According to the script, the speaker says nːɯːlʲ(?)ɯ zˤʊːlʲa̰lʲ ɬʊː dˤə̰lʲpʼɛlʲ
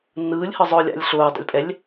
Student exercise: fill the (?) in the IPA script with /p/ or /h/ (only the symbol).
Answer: h